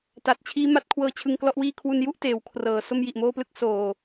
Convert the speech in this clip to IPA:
t a˨˩ t̚ t͡ɕʰ iː˦˥ m a˦˥ t̚ kʰ w ɤː˦˥ t͡ɕʰ ɯ˧ ŋ k l ɔ˥˩ ʔ w iː˥˩ kʰ w u˧ n j u˥˩ ʔ t eː˩˦ w kʰ r ɤː˩˦ s o˥˩ m j i˨˩ ʔ m oː˥˩ p l ɯ˥˩ k̚ s oː˨˩

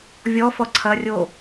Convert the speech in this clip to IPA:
vʲ ɔ f ɔ ǀʰ ɐ rʲ o

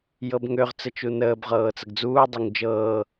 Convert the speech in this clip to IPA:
j ɤ b ŋ ø ʁ t͡s ə t͡ʃ u n əː b ʁ ɤː t͡s ə ɡ d͡z uː dˤ ø ŋ d͡ʒ ɤː

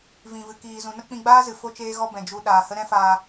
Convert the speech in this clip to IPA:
v ĩ˨ v ɨ˨ k iː˨ z ũ˨ n ə˦ k͡p ĩ˧ ɡ͡b aː˦ z ɨ˨ f o˦ t͡ʃ eː˦ ɣ ɔ˦ b ɛ̃˨ d͡ʒ u˧ ɗ aː˨ h ə˦ ɾ ɛ̃˦ f aː˧

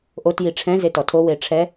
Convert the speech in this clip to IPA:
ʔ o t j i ʈ͡ʂʰ ɛ̃ z e t ɔ tʰ o w e ʈ͡ʂʰ ɛ

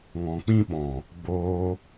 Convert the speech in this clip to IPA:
ŋ ɔ̃˨ k͡p ĩ˦ ɓ ɔ̃˨ | ɡ͡b oː˧

